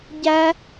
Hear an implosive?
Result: no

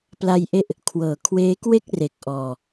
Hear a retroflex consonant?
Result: no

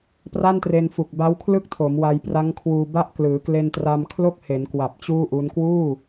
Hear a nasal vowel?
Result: no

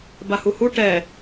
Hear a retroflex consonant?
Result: yes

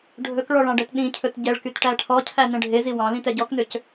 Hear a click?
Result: no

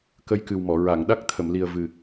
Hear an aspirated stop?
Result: yes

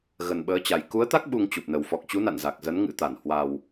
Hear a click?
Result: no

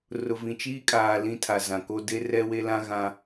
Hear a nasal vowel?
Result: yes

